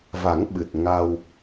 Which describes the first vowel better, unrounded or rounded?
unrounded